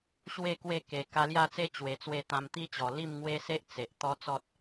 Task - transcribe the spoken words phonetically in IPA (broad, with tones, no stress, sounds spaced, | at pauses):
ɕ w e˥˧ k w e˥˧ k e˨˩ k a˧ l j a˥˧ t͡s e˦ t͡ɕ w e˨˩ t͡s w e˥˧ t̪ ã˧ m t̪ i˦ t͡ɕ ɔ˨˩ l i˥˧ m ŋ w e˦ s e˦ ʔ t͡s e˨ ʔ t̪ ɔ˦ t͡s ɔ˦ t̚